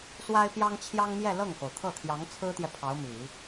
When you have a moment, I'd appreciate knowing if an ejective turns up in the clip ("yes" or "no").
no